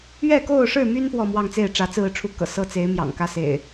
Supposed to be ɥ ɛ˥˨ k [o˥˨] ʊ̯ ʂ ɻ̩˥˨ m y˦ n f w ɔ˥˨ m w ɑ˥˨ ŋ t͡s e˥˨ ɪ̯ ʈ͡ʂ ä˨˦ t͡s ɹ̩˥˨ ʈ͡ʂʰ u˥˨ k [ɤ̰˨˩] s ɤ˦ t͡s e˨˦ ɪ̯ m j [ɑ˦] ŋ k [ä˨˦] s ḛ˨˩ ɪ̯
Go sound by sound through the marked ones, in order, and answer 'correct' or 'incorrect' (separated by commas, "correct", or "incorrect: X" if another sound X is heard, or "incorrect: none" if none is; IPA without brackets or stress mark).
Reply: correct, correct, incorrect: ɑ̰˨˩, incorrect: ä˦